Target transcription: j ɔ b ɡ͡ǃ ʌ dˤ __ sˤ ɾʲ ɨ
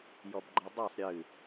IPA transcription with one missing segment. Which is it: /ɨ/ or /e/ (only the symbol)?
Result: e